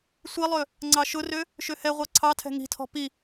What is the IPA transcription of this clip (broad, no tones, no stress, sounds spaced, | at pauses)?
sʷ i lˠ ø | ŋ͡ǀ ɑ ʃ ʊ r ø | ʃ ø h ɛ ʁʷ ɑ ǀʰ ɑ tʰ ɛ̤ ŋ i̤ tʰ ɔ̤ p i